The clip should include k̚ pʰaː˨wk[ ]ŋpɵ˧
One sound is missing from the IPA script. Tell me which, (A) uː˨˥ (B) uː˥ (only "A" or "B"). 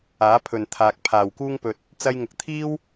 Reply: B